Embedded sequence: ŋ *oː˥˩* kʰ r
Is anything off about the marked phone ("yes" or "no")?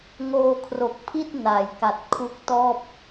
yes